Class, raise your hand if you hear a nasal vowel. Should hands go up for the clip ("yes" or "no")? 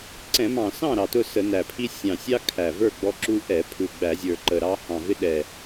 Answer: yes